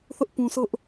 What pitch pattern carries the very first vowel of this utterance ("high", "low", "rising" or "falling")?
high